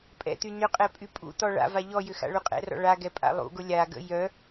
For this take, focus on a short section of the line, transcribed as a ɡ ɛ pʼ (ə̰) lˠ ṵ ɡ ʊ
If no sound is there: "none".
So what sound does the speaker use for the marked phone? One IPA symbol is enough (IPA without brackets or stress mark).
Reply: a̰